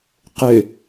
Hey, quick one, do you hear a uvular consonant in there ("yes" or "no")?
yes